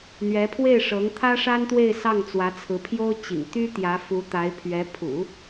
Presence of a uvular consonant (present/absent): absent